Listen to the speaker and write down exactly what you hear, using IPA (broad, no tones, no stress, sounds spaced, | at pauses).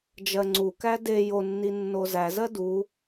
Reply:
d͡ʒ ɜ ŋ͡ǀ u k æ d e j o nː i nː o z æ z ɜ d u